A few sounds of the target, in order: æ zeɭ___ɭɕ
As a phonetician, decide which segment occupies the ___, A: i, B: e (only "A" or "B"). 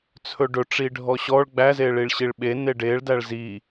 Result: A